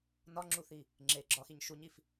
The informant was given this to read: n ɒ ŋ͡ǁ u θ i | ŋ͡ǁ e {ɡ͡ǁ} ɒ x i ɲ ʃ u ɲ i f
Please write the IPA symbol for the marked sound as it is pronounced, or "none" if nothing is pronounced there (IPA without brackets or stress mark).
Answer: ɡ͡ǁ